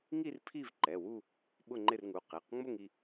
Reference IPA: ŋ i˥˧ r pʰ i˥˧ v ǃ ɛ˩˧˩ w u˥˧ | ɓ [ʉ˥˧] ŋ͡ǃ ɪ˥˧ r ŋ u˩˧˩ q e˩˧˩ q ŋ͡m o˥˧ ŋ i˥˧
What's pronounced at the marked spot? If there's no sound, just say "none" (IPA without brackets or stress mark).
ʊ˥˧